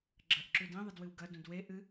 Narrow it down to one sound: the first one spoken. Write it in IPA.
ɡ͡ǁ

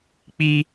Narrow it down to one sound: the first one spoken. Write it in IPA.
k͡p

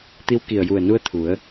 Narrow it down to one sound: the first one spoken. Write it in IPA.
t̪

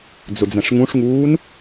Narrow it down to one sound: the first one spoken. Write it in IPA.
d͡z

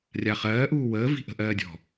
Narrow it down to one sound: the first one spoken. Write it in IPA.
rʲ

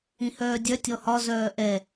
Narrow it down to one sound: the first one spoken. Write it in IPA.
ĩ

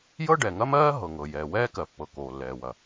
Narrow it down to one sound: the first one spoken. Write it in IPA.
j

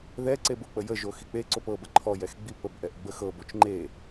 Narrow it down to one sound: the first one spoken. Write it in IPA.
ð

